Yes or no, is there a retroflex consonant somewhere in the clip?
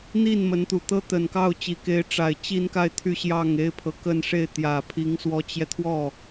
yes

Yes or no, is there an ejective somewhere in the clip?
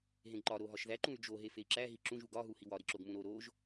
no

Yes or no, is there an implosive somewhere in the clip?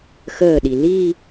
yes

